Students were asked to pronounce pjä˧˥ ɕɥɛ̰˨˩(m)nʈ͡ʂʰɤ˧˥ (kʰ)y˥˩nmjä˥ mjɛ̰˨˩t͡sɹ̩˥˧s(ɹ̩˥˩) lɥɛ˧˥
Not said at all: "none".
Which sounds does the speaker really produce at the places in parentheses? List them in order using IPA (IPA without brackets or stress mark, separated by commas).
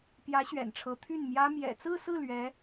none, t̪ʰ, ɹ̩˥˩